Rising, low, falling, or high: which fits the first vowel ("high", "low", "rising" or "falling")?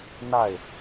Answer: falling